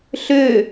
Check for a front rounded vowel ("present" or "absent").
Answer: present